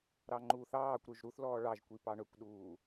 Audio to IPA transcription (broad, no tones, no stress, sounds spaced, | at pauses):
ɾ ɑ ŋ͡ǃ uː θ ɑː kʷ ɾ ø ʒ ɾ u θ l ɔː ɭ ɑ ʒ kʷ i p ɑ ɳ ɵ kʷ ɗ uː